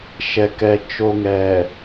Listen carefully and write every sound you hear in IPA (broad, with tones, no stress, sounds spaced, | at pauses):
ʃ ɛ˨ k ɛ˨ t͡ʃ o˨ ŋ ɛ˨